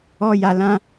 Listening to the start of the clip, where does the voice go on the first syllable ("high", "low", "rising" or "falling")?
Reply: high